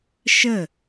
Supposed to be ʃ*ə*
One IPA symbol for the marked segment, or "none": ə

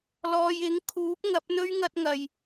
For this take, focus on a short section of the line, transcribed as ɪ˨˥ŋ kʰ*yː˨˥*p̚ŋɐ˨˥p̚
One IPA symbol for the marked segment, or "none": uː˨˥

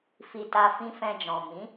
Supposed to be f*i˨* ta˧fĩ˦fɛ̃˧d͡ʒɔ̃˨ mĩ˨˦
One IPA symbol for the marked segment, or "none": i˨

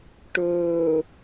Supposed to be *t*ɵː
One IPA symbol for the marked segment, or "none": ʈ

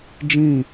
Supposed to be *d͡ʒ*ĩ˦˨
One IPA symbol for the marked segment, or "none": d͡ʒ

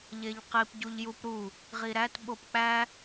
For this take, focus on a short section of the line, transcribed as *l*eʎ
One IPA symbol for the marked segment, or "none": ʎ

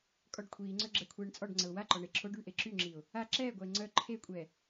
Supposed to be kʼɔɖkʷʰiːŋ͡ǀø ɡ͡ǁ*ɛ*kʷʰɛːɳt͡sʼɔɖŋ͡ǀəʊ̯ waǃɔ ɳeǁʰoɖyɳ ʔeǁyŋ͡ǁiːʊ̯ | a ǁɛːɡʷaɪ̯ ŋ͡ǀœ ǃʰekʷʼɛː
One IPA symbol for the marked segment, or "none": ɛ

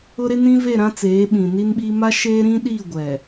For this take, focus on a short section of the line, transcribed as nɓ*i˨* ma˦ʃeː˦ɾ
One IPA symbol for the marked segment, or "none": i˦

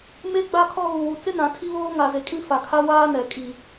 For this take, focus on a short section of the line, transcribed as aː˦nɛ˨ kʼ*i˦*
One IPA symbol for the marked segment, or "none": i˨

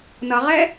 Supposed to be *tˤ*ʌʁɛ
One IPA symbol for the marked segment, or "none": n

